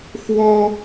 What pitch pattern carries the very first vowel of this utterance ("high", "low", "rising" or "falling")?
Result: high